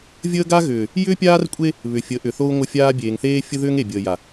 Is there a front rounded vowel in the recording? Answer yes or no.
yes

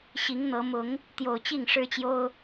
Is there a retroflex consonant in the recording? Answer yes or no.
yes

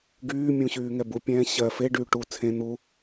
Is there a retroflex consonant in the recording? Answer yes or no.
yes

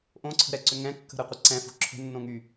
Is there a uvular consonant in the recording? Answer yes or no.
yes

